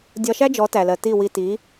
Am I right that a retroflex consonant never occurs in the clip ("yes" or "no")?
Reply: yes